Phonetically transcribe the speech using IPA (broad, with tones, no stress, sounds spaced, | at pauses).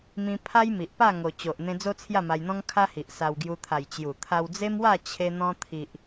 m ĩ˦ pʰ a˦ j m i˨ ʔ p a˥˧ ŋ o˧ t͡ɕ o˨ ʔ n̪ ẽ˧ d͡z o˦ t͡sʰ j a˥˧ m a˧ j n̪ ɔ̃˦ ŋ kʰ a˦ h i˨ ʔ s a˧ w ɡ j u˧ t̪ʰ a˨˩ j t͡ɕ j u˨˩ t̪ʰ a˧ w d͡z e˦ m w a˥˧ t͡ɕʰ e˧ n̪ ɔ̃˧ t̪ʰ i˨ ʔ